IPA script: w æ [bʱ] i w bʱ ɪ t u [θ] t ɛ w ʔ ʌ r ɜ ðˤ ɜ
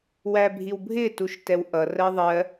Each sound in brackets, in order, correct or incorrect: correct, incorrect

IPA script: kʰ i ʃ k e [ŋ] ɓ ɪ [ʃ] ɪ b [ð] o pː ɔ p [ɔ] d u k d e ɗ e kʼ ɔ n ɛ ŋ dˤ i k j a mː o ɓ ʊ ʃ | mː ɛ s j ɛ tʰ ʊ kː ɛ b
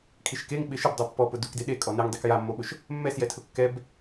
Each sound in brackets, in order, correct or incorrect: correct, correct, incorrect, incorrect

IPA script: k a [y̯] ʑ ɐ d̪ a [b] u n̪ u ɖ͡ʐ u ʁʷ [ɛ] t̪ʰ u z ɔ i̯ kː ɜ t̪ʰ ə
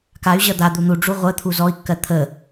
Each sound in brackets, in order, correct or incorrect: correct, incorrect, incorrect

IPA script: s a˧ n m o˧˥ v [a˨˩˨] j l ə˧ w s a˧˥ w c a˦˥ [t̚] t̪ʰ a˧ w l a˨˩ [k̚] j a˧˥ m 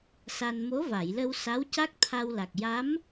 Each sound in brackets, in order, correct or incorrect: correct, incorrect, correct

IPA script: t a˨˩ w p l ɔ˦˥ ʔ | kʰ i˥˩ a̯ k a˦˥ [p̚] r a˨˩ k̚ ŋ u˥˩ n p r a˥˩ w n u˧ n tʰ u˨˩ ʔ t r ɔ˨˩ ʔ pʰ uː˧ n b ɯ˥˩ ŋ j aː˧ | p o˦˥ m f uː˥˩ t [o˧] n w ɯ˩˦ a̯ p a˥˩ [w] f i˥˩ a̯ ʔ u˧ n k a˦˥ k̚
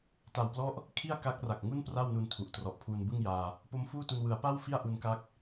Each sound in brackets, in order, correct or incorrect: incorrect, incorrect, correct

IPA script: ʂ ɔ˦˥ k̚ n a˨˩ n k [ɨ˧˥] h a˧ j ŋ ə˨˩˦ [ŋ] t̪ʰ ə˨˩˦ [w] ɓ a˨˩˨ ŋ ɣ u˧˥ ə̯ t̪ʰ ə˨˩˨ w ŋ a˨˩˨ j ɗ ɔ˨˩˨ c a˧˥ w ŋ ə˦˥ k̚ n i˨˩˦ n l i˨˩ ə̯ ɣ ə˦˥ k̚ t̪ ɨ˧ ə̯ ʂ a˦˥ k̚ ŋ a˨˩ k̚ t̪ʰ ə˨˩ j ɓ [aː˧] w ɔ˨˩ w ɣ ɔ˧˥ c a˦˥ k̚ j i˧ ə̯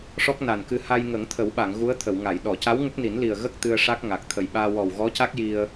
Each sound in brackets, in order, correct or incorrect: incorrect, correct, correct, correct

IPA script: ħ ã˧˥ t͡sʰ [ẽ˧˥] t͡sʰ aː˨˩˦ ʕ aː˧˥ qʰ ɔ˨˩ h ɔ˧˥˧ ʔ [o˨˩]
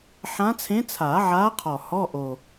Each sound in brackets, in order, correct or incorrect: correct, correct

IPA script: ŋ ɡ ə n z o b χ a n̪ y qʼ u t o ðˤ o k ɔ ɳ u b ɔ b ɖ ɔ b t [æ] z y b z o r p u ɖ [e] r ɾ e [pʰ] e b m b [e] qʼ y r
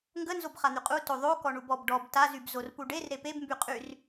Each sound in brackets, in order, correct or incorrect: incorrect, correct, incorrect, incorrect

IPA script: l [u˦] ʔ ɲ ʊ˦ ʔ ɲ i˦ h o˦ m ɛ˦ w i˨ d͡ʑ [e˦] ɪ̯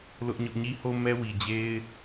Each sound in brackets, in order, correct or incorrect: incorrect, correct

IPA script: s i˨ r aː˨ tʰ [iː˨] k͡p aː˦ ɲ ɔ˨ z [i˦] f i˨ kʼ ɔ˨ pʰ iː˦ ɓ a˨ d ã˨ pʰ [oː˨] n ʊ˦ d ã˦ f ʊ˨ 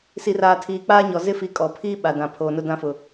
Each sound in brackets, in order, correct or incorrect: correct, incorrect, correct

